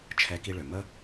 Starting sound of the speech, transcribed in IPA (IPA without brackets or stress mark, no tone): t͡ʃʰ